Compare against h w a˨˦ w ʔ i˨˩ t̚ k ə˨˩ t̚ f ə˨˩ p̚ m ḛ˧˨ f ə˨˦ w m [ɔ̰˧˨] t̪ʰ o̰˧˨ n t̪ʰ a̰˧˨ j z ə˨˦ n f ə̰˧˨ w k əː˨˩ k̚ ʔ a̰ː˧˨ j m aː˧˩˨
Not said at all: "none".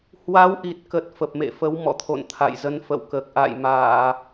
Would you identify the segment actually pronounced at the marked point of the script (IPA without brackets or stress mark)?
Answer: ɔ̰˧˨